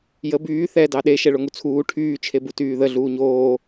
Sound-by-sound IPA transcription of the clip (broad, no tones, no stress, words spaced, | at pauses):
jə byː θɛ dɑɗe ʃɛɭoŋut͡sʰuː ʈʰyː t͡ʃʰebutyːðə ɮuːɲoː